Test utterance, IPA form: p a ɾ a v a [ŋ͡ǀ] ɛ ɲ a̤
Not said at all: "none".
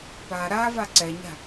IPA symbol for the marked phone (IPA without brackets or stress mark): ǀ